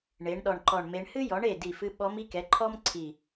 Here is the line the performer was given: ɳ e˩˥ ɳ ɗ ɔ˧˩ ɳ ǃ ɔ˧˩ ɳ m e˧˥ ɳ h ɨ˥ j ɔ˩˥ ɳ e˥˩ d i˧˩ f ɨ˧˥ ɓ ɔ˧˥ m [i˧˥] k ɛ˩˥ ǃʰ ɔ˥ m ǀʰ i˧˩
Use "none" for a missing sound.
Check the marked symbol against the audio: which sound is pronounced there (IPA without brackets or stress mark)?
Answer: i˧˥